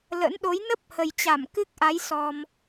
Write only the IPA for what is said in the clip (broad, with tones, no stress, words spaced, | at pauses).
lə̰˧˥nɗo˨˦j nə˦˥p̚ hə˨˩jt͡ɕa˧˩mkɨ˦˥k̚ʔa˨˦j sɔ˧m